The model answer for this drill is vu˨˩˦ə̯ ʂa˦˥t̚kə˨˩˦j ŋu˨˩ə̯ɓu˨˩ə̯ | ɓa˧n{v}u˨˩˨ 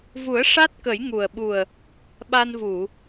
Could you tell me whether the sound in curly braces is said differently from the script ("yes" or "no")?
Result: no